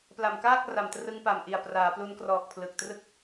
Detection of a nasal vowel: absent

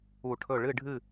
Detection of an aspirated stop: present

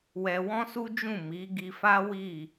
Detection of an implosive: absent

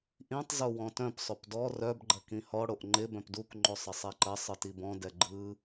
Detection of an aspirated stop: absent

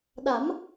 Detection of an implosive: present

